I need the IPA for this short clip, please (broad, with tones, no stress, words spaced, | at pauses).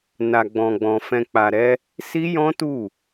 na˧ɡ͡bɔ̃˧ɡ͡bɔ̃˧ fɛ̃˧k͡pa˧ɾɛ˦ | si˦jɔ̃˦tu˦˨